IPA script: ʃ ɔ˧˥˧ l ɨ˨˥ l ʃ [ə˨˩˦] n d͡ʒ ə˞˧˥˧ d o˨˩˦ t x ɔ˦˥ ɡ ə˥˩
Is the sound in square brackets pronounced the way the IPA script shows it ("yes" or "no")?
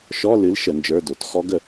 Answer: yes